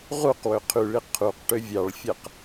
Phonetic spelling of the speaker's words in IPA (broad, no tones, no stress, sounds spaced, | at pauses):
ʁ u q w ø qʰ y ɭ i qʰ u q ʈ ø vʲ ɑ ɭ fʲ æ q